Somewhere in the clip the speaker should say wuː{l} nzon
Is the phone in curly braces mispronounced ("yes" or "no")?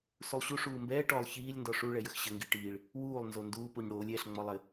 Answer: yes